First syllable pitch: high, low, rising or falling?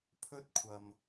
high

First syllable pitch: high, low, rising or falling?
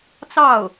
falling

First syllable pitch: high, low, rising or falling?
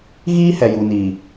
high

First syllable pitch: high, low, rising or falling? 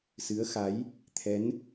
rising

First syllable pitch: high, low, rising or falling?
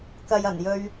low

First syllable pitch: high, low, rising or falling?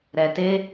low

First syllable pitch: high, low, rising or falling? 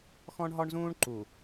high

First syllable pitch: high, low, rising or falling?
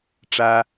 high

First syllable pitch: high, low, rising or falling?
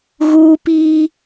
high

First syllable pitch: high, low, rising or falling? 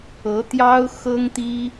rising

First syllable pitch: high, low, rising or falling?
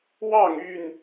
falling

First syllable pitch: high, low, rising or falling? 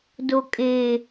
low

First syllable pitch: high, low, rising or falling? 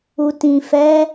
low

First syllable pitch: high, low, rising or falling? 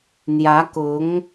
rising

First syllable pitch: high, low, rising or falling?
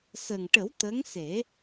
low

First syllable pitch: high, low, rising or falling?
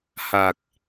low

